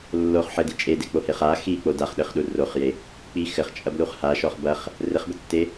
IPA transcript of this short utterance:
lː o χ ħ ɘ d i t͡ʃʼ e d e k͡p o h e χ a x i k͡p o d a χ ɗ ɘ χ ɗ u r o χ j e | k͡p i x ɘ χ t͡ʃʼ ɐ b l u χ h a ʃ ɔ χ b ɐ χ | r ɘ χ b ɘ tː e

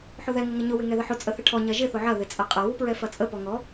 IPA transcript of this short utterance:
ħ ʊ ð ɛ ŋ ə ŋ ə ɲ ʊ w ɪ ŋ ɛ ð ə ħ ʊ t͡sʼ ə θ ɪ ʈʰ ɔ ɲ ɐ ʒ ɪ θ ʊ ʕ ɐ ð ɪ t͡sʼ ɐ qʼ ɐ w u p ɹ ɛ f ɐ t͡sʼ ə p ɔ ŋ ɔ

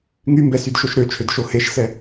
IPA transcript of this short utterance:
ŋ y m b ɛ s y d ʃ o ʃ ɾ ø t͡ʃʰ ø d ʃ o h e ʃ s ɛ

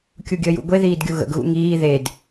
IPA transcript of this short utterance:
kʲ u ɡʲ əː j ṵ ɡʷ e ð iː d ɡʲ u ɣ ə̰ ɡ ɣ ṵ ŋ iː ð e d

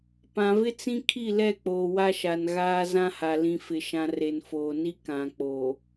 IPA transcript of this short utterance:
p ã˨ v ɪ˦ t͡s ĩ˦ kʰ i˦˨ l ɛ˦˨ k͡p oː˨ w a˦ ʃ a˨ n ɣ aː˦ z ã˦ h a˨ l ĩ˨ f ɪ˨ ʃ ã˨ r e˨ n f oː˨ n i˦ k ã˨ k͡p oː˨

